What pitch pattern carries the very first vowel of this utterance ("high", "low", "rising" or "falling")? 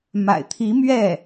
low